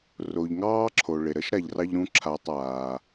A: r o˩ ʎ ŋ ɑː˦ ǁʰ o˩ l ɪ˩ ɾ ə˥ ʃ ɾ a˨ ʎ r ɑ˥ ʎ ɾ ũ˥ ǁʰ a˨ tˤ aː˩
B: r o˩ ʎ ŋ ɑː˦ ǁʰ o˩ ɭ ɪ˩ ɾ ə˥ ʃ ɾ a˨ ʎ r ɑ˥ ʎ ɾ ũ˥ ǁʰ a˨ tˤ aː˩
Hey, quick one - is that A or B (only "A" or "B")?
B